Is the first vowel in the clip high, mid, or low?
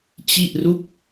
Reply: high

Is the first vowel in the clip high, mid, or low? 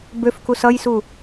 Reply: mid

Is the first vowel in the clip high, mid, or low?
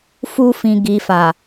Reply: high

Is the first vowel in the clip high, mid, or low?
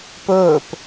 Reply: mid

